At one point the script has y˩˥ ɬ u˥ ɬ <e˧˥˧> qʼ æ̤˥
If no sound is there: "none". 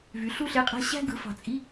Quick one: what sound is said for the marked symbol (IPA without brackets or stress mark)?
e˧˥˧